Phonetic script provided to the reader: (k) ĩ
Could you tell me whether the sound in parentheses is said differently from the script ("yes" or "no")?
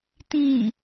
yes